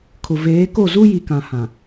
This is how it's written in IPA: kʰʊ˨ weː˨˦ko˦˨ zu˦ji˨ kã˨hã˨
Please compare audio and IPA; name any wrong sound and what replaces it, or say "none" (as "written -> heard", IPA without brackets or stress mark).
w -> v